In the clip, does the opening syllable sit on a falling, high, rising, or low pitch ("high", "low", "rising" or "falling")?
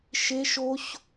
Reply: high